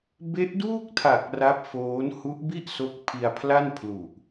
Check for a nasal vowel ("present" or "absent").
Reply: absent